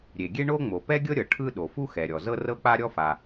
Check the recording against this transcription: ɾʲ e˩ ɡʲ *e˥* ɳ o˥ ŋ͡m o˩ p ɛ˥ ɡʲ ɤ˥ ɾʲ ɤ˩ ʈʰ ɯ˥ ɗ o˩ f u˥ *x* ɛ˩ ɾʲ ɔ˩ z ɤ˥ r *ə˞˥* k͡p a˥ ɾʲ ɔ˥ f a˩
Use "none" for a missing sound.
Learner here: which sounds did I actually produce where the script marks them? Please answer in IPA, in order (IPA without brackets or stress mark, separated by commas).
e˥, x, ɤ˥